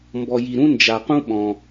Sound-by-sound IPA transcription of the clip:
m b ɔ˧ j i˧ ɾ ũ˥ n d͡ʒ a˧ q ũ˥ ɓ ɔ̃˧

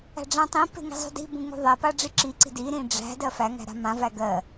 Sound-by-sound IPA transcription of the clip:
æ̤ ɖ͡ʐ æ̃ tˤ ĩ p e̤ ŋ i̤ zˤ ṳ d i̤ b ũ ŋ ṳ ðˤ e p a ɖ͡ʐ i ǁ i ǀ i̤ d i ɾ ĩ ɖ͡ʐ æ̤ d ɜ f æ ŋ æ̤ ɾ a̤ m ã v æ ɡ ɜ

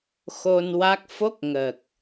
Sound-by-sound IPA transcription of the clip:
x o˧ n w a˦˥ k̚ f o˦˥ k̚ ŋ ə˨˩ k̚

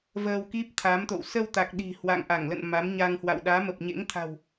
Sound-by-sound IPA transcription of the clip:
v əː˧ w k i˦˥ p̚ t̪ʰ a˨˦ m t̪ o̰˧˨ w s əː˧ w t̪ a˨˩ k̚ ɗ i̤˨˩ h w a̰˧˨ ŋ ʔ a˧˩ ŋ l ə̰˧˨ n m a˨˦ m ɲ a˧ ŋ h w a̰˧˨ w ɗ aː˨˦ m ə˨˩ p̚ ɲ ḛ˧˥ ŋ t̪ʰ a̤˨˩ w

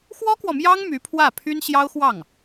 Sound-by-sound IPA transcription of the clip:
x w ɔ˥ k w ɔ˨ m j ɑ˥ ŋ m y˧˥ pʰ w ä˥˩ pʰ y˥ n ɕ j ɑ˥ ʊ̯ x w ɑ˥˩ ŋ

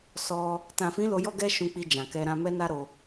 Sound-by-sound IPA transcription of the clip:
s ɔ˧ | t ã˨ f ĩ˨˦ l o˧ j ɔ˦ ɡ ɛ˦ ʃ ũ˧ k͡p i˧ d͡ʒ ã˨ k ɛ˧ ɾ ã˧ m ɛ˦ n a˦ ɾ o˧

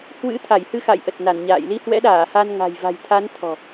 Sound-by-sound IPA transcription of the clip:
h w ɨ̰˧˥ t̪ʰ a˧˩ j h ɨ˧ x a̰˧˨ j ʔ ə˨˩ t̚ n a˧˩ n ɲ a̰ː˧˨ j l i˧ h w ɛ̰˧˥ ɗ aː˧˩ h a˧ n ŋ a̤˨˩ j v a̤˨˩ j t̪ʰ a˨˦ n t̪ʰ ɔ̤˨˩

